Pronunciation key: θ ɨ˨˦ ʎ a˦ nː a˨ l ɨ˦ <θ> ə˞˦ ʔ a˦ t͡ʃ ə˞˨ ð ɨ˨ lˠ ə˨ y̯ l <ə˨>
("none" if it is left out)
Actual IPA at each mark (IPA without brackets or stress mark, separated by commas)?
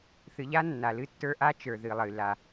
tː, a˨